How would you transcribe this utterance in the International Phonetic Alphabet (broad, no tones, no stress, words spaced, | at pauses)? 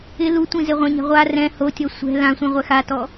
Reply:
ɪ lu tʷĩzeʁʷɛ̃ɲɛ̤ ʁʷa rɛ̃ hotʲɔ sʷɛ̤ lãsʷĩ ʁʷɛxatɔ